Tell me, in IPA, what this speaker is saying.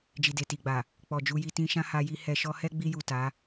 d͡ʒ i˨ d e˨ t i˨ ɡ͡b a˨ | k͡p ɔ˨ d͡ʒ u˧ j i˧ t ĩ˧ ʃ ã˦ h a˧ j i˦ h ɛ˧ ʃ ɔ˦ h ɛ˦ ɡ͡b i˧ j u˨ t a˨˦

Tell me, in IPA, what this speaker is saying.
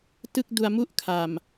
t ɯ˥˩ k̚ d u˧ a̯ m u˥˩ ʔ kʰ a˨˩ m

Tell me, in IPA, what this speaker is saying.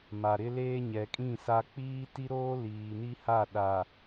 m a˨ ɾ ɪ˦ l eː˦ ɲ ɛ˨ kʼ ĩ˦˨ s a˦ k͡p iː˦ t i˦ ɾ oː˦ l iː˨ n i˦ h a˦˨ ɗ a˨

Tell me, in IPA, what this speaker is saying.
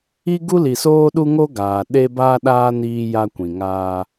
i˦ ɡ u˦ l i˨ s oː˦ ɗ u˦ ŋ o˦ ɡ aː˨ ɗ e˦ b a˦ ɗ aː˦ n iː˦ j a˦ kʷ ĩ˨ ŋ aː˦

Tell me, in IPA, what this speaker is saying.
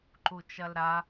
ǃ u t͡ʃ ɐ l ɾ a

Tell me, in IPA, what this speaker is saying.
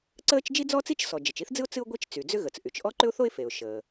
ǀ əː˥ t͡ʃ d͡ʒ i˥ d͡z ɔ˥ t͡s i˥ t͡ʃ s ɔ˩ d͡ʒ ə˩ t͡ʃ i˥ θ d͡z ɨ˥ ʊ̯ t͡s ɨ˥ ʊ̯ ɡʷ i˥ t͡ʃ t͡s y˩ d͡z ʏ˥ ɣ ə˩ t͡s ʔ y˩ t͡ʃ ʔ ɔ˥ ǃ ʏ˥ ʊ̯ θ o˥ ɪ̯ f e˩ ʊ̯ ʃ əː˩

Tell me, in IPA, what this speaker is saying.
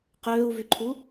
q øː u̯ v y ǃʰ u

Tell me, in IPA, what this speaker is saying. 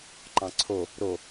ǃ ɑ̃ ǀʰ o | ɾ o

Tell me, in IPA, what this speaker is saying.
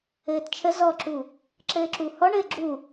ɘː t t͡ʃʰ ə z ɔ ǁ u | ǁ ɘː ǁ u h ɔ ɳ ɘː ɡ͡ǁ u

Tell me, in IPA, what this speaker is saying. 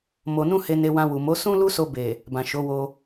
m o˨ n ũ˧ h e˧ n e˧ w ã˧ w u˨ m o˨˦ s ũ˦ l u˦ s o˧ b e˨ | b ã˨ ʃ o˨˦ w o˧

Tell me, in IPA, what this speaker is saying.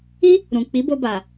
i˦ | ɾ ũ˨ k͡p i˨˦ b o˧ b a˨

